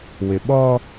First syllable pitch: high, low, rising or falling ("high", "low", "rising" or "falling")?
low